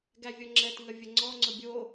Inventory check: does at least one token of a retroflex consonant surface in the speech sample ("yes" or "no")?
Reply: no